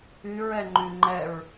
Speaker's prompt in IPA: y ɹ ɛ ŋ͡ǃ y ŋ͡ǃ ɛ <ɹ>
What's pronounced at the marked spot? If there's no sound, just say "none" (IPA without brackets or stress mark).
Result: ɹ